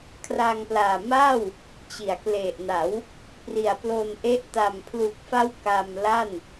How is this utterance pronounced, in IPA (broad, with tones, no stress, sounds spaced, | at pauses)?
kʰ r aː˧ ŋ p l aː˨˩ m aː˥˩ w | t͡ɕ i˩˦ a̯ k l e˨˩ ʔ n a˩˦ w | p r i˨˩ a̯ p l o˧ n ʔ e˦˥ ʔ t a˨˩ m pʰ l u˨˩ k̚ f a˦˥ w k a˧ m l a˥˩ n